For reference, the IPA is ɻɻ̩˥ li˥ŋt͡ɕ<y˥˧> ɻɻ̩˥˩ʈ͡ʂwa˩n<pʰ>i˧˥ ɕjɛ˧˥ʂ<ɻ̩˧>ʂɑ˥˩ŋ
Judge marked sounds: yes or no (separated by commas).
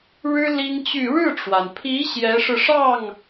yes, yes, yes